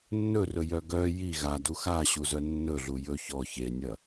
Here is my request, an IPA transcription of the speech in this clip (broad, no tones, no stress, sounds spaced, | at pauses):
nː ɵ r ɵ j œ ɡ œ j i ɣ a d u x a ɕ u z œ nː ɵ ɮ u j ɵ ç ɔ ç e nʲ ɐ